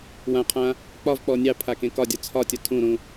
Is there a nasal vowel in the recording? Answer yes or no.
yes